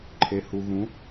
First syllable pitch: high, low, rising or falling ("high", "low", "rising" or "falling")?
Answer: low